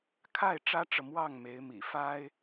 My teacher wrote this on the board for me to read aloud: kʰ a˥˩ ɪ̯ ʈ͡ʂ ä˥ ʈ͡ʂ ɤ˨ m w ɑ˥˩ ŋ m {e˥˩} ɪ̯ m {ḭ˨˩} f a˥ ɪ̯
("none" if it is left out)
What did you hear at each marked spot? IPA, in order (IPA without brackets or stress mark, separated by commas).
e˧˥, ḭ˨˩